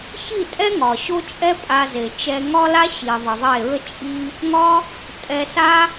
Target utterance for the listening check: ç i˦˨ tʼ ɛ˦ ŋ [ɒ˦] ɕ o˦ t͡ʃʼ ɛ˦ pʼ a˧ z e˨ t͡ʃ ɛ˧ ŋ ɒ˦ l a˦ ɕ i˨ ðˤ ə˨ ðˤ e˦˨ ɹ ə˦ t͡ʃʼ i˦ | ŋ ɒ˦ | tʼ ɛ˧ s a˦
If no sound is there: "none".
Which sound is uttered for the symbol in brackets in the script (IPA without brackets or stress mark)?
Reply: ɒ˨